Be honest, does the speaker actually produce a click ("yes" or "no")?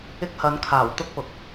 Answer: no